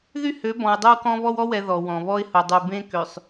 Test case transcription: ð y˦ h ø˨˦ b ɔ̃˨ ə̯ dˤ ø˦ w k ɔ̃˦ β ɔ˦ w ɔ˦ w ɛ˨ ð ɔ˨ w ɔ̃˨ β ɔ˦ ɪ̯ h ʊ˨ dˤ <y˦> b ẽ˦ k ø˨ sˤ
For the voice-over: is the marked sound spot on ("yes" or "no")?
no